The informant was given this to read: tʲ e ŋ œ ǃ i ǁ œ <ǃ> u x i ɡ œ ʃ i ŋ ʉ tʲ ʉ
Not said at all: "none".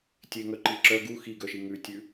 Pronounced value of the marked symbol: ɡ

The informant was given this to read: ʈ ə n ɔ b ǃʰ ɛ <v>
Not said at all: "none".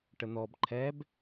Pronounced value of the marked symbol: b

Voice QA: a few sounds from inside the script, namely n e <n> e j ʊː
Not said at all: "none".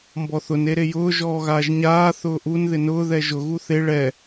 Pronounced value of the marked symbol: ɾ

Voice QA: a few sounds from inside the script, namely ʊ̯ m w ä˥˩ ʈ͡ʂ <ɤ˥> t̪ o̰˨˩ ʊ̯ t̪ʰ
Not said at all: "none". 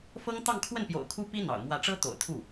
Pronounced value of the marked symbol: ɤ˥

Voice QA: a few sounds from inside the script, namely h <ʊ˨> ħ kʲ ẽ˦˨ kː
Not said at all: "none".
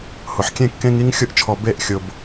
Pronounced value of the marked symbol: ʊ˨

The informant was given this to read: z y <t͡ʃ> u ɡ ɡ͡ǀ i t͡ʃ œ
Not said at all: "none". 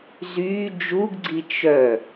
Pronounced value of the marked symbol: d͡ʒ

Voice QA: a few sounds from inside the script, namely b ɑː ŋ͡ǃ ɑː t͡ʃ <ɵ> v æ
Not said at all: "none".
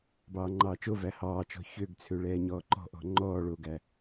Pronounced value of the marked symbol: o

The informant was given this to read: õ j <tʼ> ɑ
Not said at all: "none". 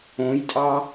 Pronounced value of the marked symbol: tʼ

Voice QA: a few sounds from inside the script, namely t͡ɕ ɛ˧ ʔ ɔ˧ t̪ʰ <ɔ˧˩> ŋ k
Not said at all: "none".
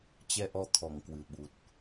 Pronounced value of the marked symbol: ɔ˧˩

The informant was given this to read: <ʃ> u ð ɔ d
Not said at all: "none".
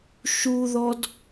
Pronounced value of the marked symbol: ʃ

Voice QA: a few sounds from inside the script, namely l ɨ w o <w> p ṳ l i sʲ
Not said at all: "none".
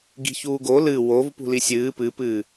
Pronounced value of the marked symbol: v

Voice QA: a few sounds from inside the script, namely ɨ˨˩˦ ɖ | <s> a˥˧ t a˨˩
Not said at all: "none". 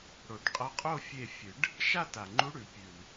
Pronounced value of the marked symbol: ʃ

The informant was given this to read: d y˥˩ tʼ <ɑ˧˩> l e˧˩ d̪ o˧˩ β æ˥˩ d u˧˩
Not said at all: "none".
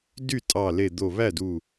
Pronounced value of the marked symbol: ɑ˧˩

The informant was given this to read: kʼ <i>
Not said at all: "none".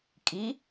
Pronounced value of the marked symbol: i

